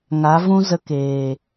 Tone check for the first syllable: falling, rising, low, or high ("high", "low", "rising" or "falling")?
rising